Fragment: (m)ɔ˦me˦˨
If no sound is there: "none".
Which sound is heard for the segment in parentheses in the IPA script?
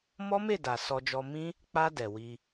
m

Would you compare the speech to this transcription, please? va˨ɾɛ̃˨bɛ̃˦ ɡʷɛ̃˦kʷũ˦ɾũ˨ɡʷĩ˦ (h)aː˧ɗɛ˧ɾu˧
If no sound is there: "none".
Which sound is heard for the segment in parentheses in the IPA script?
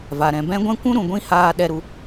h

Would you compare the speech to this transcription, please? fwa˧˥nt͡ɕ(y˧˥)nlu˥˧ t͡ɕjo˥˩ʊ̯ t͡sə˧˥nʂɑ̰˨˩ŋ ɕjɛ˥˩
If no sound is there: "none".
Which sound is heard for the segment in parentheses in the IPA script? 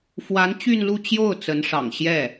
y˥˧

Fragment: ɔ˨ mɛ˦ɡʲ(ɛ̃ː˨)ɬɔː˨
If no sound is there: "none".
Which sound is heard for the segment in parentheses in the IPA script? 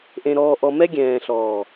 ɛ̃ː˨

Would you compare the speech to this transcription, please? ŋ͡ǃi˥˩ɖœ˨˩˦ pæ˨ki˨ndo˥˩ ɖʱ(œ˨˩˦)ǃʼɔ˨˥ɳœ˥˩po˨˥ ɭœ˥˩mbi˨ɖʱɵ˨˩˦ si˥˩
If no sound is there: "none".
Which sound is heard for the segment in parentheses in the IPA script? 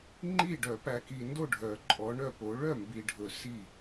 œ˨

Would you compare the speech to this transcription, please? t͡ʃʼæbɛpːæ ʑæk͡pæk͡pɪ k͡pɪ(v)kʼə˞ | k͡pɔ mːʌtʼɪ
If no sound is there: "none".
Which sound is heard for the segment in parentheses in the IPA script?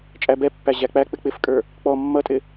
f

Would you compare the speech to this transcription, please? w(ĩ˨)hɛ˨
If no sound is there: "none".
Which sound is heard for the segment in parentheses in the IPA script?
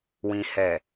ĩ˨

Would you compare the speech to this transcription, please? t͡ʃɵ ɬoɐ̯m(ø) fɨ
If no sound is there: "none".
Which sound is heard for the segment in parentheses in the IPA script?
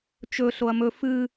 ɵ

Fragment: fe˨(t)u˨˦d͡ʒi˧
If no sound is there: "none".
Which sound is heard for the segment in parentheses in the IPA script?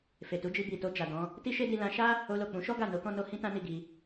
t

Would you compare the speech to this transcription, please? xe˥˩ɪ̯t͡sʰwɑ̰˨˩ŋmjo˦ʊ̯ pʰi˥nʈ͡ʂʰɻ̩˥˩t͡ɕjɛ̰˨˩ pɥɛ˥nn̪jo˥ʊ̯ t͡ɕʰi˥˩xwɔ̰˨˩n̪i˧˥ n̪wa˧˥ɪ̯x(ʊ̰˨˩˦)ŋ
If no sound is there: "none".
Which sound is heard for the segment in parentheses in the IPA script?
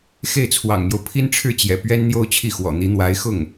ʊ˥˩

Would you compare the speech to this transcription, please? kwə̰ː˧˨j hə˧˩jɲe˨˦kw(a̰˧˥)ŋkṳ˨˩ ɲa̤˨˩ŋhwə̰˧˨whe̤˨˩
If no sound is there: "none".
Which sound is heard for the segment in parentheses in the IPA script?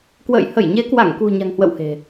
a˧˩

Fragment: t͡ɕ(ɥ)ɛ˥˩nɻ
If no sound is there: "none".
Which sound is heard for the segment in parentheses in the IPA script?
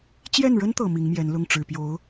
j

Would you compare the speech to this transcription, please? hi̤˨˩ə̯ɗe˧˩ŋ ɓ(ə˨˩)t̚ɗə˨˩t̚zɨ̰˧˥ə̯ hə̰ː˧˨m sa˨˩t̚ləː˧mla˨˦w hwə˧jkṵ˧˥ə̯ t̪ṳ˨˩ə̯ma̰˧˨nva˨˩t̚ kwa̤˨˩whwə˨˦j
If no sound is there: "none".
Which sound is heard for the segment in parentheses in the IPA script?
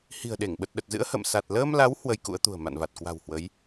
ə˨˩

